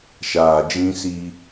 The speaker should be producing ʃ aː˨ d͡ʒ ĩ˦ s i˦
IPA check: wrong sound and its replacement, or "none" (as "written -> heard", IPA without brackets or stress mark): none